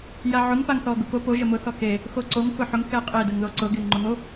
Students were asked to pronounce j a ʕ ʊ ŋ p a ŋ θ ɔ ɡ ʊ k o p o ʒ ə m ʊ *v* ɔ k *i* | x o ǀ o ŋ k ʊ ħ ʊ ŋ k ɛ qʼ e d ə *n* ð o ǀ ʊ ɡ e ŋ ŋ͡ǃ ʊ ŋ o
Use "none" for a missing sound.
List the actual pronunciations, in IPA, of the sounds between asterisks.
θ, e, ŋ

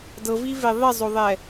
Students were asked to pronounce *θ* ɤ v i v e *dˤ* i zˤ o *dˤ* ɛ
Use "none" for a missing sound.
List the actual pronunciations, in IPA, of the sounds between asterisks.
d, ðˤ, ðˤ

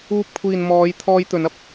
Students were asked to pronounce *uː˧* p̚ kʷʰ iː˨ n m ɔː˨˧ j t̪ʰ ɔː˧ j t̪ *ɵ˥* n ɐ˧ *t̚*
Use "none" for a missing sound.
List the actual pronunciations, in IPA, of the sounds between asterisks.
uː˧, ɵ˨˧, p̚

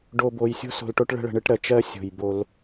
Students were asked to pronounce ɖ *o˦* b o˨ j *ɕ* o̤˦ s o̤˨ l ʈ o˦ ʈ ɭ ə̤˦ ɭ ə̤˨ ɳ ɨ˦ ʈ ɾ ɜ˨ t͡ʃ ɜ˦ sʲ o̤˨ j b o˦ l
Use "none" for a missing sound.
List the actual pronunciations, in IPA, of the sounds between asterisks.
o˨, sʲ

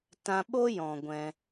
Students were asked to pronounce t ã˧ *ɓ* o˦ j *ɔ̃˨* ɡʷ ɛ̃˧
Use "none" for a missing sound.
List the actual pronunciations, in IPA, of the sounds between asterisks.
ɓ, ɔ̃˨

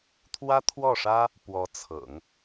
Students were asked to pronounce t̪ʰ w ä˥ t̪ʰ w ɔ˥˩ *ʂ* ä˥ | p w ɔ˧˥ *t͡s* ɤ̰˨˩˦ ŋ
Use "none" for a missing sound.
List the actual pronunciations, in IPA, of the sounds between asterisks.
ʂ, t͡sʰ

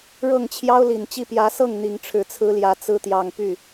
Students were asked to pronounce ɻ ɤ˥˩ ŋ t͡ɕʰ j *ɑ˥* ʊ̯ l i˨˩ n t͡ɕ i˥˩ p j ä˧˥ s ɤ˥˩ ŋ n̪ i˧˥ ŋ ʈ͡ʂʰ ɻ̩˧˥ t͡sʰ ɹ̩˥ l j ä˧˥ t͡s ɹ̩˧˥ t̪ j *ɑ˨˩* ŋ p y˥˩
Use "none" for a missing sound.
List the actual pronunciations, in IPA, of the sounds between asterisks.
ɑ˥, ɑ˨˩

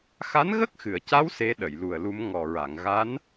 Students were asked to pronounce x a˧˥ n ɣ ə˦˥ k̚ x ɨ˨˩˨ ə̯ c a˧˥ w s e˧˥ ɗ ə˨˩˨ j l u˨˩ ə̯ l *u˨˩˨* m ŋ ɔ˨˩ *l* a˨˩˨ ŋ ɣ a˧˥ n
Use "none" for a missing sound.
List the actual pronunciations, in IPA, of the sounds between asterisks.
u˧˥, ɹ

